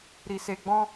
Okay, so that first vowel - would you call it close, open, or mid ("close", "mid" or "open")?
close